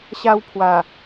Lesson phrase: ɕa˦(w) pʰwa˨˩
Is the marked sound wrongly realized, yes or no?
no